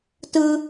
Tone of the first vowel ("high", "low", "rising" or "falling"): high